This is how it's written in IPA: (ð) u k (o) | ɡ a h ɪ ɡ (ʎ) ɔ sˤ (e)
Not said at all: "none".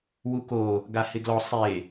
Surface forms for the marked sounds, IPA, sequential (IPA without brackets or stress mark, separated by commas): w, o, l, e